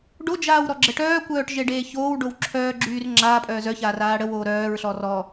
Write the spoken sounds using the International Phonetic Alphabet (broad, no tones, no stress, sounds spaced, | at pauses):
ɖ o d͡ʒ aː w ɾ ɔ ɡ͡ǁ ə ʈ œː kʷ œː ʈ ʒ e ɖ eː ç oː w ɖ o w ǁʰ œː ɡ͡ǁ yː r ŋ͡ǁ aː pʼ œː z œ ç aː r aː ɽ ə w oː ɾ œː ɹ ɬ ɔ r ɔ